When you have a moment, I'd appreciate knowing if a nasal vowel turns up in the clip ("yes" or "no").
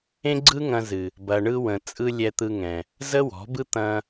yes